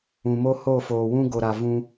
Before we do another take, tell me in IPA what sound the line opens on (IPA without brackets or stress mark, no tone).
ũ